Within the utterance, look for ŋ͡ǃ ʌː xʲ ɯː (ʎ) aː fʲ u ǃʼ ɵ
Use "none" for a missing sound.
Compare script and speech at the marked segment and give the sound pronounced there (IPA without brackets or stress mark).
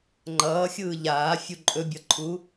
ʎ